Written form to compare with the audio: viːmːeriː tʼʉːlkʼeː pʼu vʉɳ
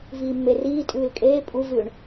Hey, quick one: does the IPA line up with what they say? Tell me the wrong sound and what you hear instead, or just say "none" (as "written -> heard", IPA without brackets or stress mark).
none